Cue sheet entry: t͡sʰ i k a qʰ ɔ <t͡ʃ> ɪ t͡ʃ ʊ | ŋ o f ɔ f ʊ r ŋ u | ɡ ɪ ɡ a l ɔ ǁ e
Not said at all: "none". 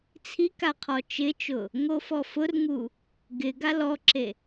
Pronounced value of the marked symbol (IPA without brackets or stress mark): t͡ʃ